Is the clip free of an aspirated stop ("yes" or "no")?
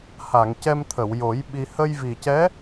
no